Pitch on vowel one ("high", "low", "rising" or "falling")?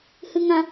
high